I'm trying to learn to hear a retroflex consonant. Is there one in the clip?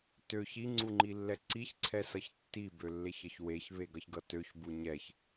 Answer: no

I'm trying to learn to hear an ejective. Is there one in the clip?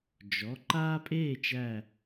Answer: yes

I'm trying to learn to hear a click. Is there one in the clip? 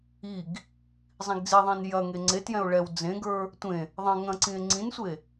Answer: yes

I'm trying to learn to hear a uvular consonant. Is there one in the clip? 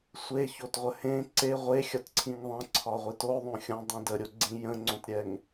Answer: yes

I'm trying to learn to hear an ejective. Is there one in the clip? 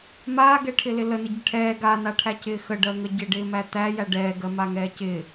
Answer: no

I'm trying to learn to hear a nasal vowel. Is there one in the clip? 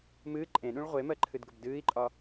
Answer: yes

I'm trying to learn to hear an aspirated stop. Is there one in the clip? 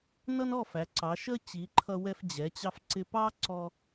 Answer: yes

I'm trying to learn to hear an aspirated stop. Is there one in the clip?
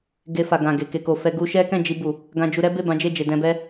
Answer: no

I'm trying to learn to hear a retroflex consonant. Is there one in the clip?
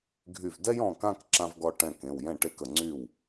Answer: yes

